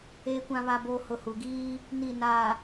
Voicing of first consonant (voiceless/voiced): voiceless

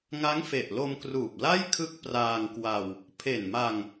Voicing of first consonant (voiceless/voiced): voiced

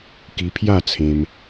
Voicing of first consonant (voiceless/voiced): voiceless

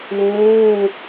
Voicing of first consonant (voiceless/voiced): voiced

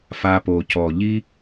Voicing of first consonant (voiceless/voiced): voiceless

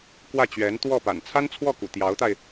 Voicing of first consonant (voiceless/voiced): voiceless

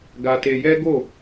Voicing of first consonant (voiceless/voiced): voiced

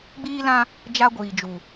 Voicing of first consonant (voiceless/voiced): voiced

